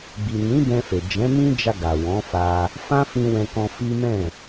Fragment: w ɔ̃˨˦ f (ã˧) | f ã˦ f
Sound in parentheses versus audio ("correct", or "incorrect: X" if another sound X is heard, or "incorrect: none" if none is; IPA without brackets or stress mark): incorrect: a˧